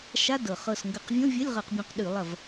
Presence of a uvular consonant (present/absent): present